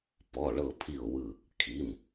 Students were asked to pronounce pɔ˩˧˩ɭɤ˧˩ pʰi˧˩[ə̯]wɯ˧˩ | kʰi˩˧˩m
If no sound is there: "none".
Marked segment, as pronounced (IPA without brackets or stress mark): ʊ̯